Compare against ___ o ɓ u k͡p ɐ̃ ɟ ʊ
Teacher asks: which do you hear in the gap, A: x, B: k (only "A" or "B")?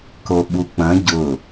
B